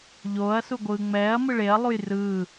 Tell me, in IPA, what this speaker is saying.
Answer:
ʎoːɐ̯suɡʷɯː ŋ͡mɛːɐ̯ mɯɭeɐ̯ lˠujrɯː

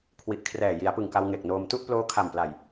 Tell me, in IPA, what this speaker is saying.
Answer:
kʰwi˨˩ʔkʰrɛː˨˩ ji˩˦a̯pɯ˨˩ŋka˧w ŋe˨˩k̚noː˧m tu˥˩ʔploː˦˥kʰa˨˩mpla˨˩j

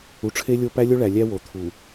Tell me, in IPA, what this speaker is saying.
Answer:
u˨ʈ͡ʂʰe˦lʲo˦ pæ˦lʲo˦ɭæ˨ lʲæ˦wo˨t̪ʰu˨

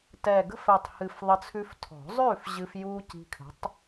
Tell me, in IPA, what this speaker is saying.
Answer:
tɛ˨˩ɡə̤˥˨fɛ˨˩tˤhɨ˨˩f ðˤə˧t͡sʰʉ˧f tʰɔ̤˨˩˦zˤʉː˥˨fʑɨ˧f juː˧ ci̤˧kʰə̤˨˥tˤ

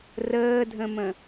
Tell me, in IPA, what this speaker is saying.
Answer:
rəːdʱə̃mə̃

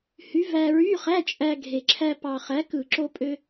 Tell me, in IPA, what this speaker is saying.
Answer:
hy˨˥ væ˧ɹy˧˥˧χæ˧˥˧ t͡ʃʼæ˧ɡʱe˨˩ǁʰæ˧ pɑ˨˩ χæ˨˥kɯ˧˩˧ǁo˧pʼø˧

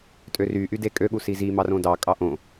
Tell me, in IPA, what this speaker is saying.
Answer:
tʼøryʔy dekʼøɠu sizimɑrõ dɑ kʼɑʔõ

